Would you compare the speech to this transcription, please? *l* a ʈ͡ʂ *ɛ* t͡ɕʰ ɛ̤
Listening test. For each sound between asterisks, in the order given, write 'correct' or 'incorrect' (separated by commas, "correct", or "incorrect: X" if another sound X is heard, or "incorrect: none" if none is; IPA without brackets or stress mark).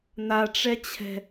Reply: incorrect: n̪, correct